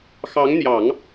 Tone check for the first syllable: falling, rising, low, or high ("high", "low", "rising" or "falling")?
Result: rising